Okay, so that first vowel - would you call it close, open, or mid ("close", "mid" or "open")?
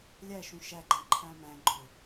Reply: open